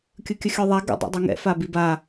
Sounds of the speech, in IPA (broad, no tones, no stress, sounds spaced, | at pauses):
kʲ ɯ kʲ ə xʲ œ ðˤ a ɡ ə̰ dˤ ɛ̰ dˤ i ŋ ɛ̰ f a b i b a